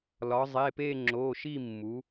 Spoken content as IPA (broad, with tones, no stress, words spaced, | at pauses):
lɒ˩˧zˤe˩˧˩pe˦˨ ŋ͡ǁo˩˧˩ʃi˦˨mːu˩˧